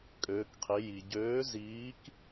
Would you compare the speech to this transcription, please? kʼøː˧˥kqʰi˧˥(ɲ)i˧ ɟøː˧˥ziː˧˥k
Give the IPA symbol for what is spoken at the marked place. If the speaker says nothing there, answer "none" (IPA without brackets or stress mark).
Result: j